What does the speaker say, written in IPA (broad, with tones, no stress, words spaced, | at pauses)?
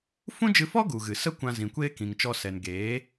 fũ˦d͡ʒɨ˧fɔ˦ ɡu˨ɣɨ˨ sə˦kʷã˧ zĩ˨kʷeː˦kĩ˨ŋt͡ʃɔ˧ sɛ˨nɡeː˨˦